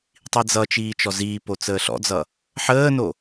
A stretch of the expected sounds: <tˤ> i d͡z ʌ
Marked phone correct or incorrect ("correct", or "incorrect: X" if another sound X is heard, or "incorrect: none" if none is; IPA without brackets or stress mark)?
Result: correct